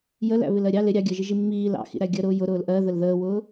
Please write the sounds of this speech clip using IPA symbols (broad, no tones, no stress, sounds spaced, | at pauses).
j ə l æ̰ β ɪ l ɜ ɾʲ ɑ l ɪ ɾʲ ɑ ɡʲ ɜ ʒ i ʒ i mː iː l ɑ̰ x ḭ ɾ æ ɡʲ ə ɾ ʊː j ʊ ɾ ʊː l ʔ ɜ ð ə l ð əː w ʊː